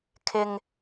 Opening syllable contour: high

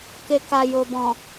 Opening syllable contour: low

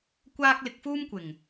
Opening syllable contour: high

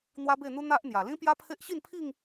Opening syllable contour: high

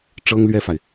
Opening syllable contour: high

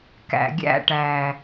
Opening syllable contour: low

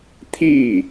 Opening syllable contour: falling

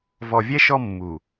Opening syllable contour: low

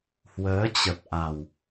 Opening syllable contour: rising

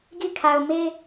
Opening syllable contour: falling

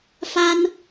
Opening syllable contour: high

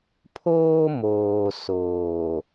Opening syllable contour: high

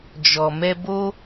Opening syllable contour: low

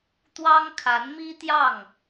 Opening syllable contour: high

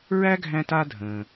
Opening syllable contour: high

